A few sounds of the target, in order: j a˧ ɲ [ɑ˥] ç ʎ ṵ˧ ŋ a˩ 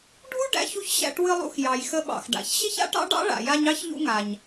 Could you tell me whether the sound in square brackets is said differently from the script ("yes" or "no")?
no